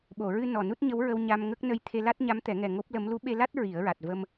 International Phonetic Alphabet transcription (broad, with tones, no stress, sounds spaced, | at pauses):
ɓ o˨˩˨ ɹ ɨ˧ n ɔ˨˩ n u˦˥ t̚ ɲ ə˧˥ w ɹ ə˧ w ɲ a˧ m ŋ ə˦˥ k̚ n ə˧ j t̪ʰ e˧ l a˦˥ t̚ ɲ a˧˥ m t̪ ɛ˨˩˦ ŋ ɛ˨˩ ŋ o˦˥ p̚ l ə˧˥ m l u˧˥ ɓ e˧ l a˦˥ t̚ ɹ i˨˩˦ ə̯ ɹ a˨˩ t̚ v ə˧ m